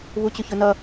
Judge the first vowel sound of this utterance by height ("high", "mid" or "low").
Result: high